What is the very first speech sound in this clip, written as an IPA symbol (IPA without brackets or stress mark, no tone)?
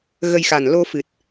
ɣ